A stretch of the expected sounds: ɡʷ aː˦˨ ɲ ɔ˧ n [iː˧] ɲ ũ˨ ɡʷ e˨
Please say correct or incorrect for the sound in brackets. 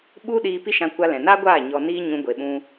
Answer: correct